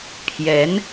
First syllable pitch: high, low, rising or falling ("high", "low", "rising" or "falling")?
rising